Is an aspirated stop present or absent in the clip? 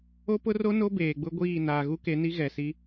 absent